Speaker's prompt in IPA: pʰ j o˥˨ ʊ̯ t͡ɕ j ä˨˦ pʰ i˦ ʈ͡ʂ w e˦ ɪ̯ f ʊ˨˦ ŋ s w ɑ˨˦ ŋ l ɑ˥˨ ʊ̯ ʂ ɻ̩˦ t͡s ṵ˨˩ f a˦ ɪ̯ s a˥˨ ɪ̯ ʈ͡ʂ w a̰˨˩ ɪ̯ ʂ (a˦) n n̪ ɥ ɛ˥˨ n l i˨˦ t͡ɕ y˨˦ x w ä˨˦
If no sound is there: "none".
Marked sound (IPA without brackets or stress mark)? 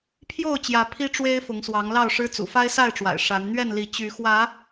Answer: a˨˦